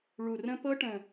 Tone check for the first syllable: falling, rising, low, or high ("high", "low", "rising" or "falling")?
low